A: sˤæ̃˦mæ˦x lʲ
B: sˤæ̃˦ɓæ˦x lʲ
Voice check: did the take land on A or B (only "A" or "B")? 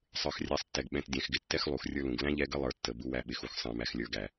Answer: A